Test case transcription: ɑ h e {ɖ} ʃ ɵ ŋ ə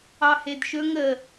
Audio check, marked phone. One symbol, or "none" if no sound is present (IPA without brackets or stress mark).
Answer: d